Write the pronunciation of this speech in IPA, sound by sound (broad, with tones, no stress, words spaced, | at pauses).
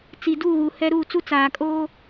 t͡si˨duː˦˨ɣu˨ hɛ˦ ɾu˦˨t͡su˦ t͡saː˨kʼoː˦